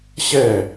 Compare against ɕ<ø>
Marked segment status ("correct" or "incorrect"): incorrect